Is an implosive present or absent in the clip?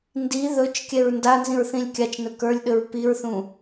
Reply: present